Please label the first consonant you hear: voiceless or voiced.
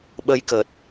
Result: voiced